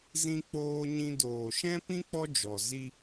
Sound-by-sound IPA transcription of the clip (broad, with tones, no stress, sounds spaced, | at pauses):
z ĩ˧ k͡p oː˧ ɲ ĩ˧ d oː˨ ʃ ɛ̃˦ p ĩ˦ k͡p ɔ˦ d͡ʒ ɔ˨ z i˧